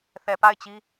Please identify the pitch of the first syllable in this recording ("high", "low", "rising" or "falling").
low